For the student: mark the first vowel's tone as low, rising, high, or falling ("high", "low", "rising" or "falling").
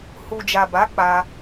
low